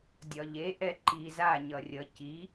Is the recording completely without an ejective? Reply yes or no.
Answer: yes